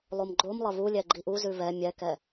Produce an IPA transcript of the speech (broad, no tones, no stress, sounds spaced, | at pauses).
lˠ o m ɡ͡ǃ o m lˠ ɐ β u lʲ ɛ ɡ͡ǃ i ʔ u z ʉ β ɛ mʲ ɛ k ɛ